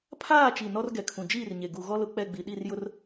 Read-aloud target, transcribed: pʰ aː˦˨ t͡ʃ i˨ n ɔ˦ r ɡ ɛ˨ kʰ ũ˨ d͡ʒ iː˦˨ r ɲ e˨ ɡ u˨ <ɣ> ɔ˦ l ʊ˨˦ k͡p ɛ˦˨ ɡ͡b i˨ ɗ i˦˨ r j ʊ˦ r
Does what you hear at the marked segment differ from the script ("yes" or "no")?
no